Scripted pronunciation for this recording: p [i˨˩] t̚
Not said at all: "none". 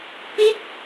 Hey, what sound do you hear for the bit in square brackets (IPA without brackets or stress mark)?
i˥˩